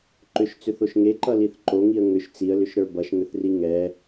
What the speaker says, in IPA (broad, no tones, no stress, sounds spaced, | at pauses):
ǃ ʏ ʃ t͡s ʏ θ o ʃ ŋ e ǃ ʌ l i θ ǃ o ŋ i ə̯ ŋ ʏ ʃ t͡s i ə̯ l ʏ ʃ ɾ ə˞ b ʌ ʃ ŋ ʏ θ r i ŋ ɛ